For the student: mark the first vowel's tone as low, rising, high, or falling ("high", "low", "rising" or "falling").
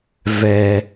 low